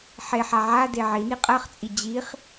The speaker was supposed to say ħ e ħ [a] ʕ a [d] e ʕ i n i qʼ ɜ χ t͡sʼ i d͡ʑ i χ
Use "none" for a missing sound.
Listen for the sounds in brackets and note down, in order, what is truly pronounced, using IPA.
a, d

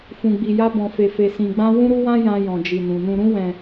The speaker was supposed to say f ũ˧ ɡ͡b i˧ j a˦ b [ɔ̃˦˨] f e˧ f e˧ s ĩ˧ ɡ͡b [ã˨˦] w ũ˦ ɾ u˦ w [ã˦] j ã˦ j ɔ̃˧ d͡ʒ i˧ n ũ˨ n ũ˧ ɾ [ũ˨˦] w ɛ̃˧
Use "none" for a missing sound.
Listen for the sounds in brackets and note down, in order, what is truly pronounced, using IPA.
ɔ̃˧, ã˦, ã˦, ũ˦

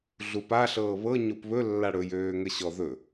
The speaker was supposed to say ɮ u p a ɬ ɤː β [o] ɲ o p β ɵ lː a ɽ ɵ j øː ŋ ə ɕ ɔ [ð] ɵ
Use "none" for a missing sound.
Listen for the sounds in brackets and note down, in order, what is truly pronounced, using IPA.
ɤ, ð

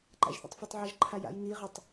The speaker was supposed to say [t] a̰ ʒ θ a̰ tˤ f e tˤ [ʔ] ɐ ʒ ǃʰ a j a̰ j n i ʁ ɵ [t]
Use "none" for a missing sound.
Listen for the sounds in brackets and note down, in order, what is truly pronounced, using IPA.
ǃ, ʕ, tˤ

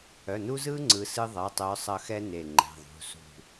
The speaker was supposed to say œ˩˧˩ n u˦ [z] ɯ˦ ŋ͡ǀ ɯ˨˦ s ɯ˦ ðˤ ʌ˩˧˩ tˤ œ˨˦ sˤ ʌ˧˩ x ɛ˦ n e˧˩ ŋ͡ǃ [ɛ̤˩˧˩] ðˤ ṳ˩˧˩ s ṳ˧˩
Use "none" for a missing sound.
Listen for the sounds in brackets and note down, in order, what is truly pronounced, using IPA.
z, ɛ̤˩˧˩

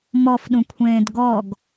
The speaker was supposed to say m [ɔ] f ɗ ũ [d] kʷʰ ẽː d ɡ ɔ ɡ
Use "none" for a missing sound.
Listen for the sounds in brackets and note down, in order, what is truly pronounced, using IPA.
ɔ, none

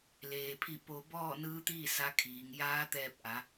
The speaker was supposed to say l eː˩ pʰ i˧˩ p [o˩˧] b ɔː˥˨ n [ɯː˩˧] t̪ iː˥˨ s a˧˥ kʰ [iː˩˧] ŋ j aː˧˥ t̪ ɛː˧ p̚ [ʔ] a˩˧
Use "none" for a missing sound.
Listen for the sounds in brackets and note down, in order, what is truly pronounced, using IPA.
o˩, ɯː˧˥, iː˩˧, ʔ

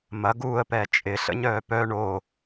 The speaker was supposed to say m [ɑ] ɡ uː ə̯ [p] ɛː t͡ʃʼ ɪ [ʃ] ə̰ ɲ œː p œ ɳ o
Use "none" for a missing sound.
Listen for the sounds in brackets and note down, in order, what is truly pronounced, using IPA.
ɐ, p, ɬ

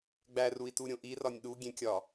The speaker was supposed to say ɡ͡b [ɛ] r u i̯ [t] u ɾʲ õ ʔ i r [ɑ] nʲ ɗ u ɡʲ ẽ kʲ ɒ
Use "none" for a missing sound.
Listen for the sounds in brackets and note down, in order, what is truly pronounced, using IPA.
æ, t, ɒ

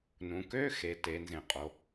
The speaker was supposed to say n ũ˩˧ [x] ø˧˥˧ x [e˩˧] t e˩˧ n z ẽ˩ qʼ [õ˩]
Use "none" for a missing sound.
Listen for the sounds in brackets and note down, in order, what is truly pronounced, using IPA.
k, e˩, o˩

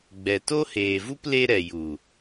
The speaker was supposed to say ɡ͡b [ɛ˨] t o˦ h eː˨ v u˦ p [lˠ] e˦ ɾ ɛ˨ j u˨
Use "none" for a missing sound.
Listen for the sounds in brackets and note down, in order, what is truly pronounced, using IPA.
ɛ˨, l

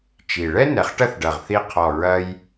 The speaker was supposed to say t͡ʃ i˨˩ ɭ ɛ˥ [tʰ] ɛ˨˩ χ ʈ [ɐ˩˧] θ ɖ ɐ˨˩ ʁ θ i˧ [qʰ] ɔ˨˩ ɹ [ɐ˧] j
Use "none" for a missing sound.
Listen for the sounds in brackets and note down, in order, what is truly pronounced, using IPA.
n, ɐ˥˧, qʰ, ɐ˧

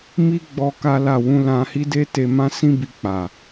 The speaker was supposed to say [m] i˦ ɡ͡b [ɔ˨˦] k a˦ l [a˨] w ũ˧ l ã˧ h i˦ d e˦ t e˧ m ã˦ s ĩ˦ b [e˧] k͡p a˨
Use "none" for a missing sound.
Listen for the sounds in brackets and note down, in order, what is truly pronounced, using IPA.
m, ɔ˧, a˦˨, i˧

